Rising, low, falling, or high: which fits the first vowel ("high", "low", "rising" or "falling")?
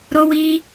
high